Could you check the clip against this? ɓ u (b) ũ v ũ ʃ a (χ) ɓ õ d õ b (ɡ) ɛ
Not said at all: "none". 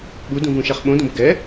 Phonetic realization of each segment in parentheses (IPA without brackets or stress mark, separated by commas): d, χ, ɡ